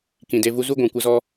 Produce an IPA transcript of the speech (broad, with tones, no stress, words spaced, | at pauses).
kĩ˨de˧ vu˧zu˦ ɡʷũ˨ kʷə˦zɔ˦